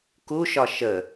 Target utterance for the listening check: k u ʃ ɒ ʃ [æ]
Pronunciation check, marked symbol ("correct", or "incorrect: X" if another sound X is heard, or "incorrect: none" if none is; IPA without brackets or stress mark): incorrect: ə